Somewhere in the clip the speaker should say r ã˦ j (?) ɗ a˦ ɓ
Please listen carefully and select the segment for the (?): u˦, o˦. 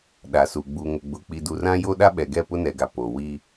o˦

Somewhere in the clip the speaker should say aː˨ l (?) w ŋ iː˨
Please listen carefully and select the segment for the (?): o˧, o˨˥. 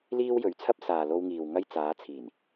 o˧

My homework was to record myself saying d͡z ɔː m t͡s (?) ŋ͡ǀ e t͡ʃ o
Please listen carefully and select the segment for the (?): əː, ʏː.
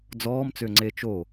ʏː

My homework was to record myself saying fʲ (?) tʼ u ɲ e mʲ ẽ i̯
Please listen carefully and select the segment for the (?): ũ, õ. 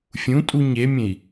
ũ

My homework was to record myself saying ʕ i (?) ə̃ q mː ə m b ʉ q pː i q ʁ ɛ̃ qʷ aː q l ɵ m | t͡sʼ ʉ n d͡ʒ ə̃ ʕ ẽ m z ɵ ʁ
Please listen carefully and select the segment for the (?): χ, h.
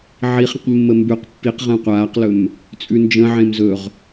χ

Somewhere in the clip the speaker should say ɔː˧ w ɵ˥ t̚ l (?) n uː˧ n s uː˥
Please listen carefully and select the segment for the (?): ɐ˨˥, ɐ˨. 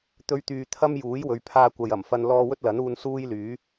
ɐ˨˥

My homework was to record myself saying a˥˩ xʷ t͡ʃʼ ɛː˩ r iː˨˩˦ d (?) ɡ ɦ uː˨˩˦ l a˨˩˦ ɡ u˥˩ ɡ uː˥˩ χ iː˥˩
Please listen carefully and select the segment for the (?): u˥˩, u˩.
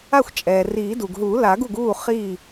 u˩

